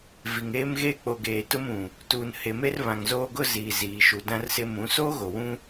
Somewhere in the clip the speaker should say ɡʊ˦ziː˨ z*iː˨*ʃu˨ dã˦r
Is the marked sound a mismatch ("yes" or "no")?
no